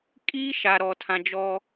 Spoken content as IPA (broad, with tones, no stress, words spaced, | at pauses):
kʼiː˦ʃa˨ ɾɔ˨tʰã˨d͡ʒɔ˦